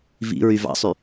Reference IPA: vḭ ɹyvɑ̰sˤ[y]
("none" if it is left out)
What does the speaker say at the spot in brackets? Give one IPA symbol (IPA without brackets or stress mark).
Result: y